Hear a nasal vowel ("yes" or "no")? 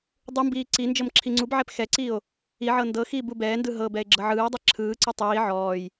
no